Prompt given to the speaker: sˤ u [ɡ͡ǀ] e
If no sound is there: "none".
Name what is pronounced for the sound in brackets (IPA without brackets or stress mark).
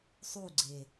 ɡ͡ǀ